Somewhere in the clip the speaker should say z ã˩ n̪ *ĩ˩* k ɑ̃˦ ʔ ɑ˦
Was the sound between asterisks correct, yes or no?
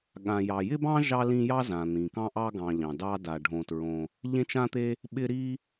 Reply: yes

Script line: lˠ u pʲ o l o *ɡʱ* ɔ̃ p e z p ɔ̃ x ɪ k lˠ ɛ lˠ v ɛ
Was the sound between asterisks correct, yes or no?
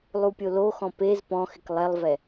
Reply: no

